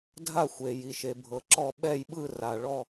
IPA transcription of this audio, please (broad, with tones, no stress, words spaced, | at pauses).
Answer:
dʱa˦˨xʷe˩ji˩ ʃe˩bʱɤ˩ǁɔ˦˨ ɓɛ˦˨jɓɯ˦˨ra˩ ɭɔ˦˨